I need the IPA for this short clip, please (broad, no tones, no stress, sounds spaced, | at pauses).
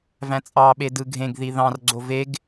v æ̃ t͡sʼ ɑ ɓ e d ɯ ɡʱ ẽ ɡ ð i ð ɑ̃ r ɡ͡ǀ o v e ɡ